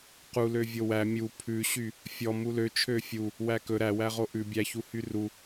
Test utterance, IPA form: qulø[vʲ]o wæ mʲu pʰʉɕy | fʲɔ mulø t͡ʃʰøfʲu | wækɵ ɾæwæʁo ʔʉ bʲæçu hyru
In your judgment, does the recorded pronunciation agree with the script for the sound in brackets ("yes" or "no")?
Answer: yes